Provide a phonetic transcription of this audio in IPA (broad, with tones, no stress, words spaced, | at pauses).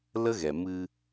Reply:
lə˦ɣɛ˨ mɨ˧